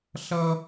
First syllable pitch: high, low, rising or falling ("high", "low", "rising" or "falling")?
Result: high